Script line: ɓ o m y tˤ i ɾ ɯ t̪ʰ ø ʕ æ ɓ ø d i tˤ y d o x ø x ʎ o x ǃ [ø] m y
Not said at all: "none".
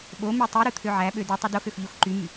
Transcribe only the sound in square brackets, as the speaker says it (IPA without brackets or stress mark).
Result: y